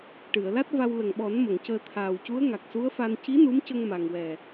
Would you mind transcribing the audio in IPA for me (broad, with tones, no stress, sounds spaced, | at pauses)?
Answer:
ʈ ɨ˨˩˨ ə̯ l a˦˥ t̚ v a˧ w l ə˨˩ ŋ ɓ ɔ˨˩˦ n m ə˨˩˨ ŋ c əː˧ t̪ʰ aː˨˩ w c u˧˥ ə̯ ŋ a˨˩ k̚ s u˧˥ ə̯ f a˧ n c i˧˥ n u˧˥ m c ə˧ ŋ m a˨˩ ŋ w ɛ˨˩